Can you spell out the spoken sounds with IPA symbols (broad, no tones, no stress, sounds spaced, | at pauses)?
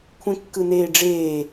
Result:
kʷʰ ẽ kː ɯ n eː ɖ͡ʐ eː